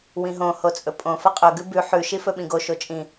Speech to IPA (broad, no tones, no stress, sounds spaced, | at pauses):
w ĩ ɦ õ h o t͡sʼ ɵ pʼ õ f ɐ qʼ ɵ ɡ ʉ b ʉ ħ ʉ ʃ i f ɵ ɓ ĩ ɡ o ʃ o t͡ʃʼ ĩ